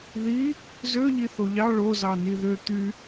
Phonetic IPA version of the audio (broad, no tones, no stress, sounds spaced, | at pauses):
ð i | z ø ʎ i θ o ʎ ɑ ɭ o z ɑ n i ð ø t̪ y